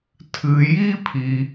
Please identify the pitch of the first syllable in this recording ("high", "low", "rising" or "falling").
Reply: low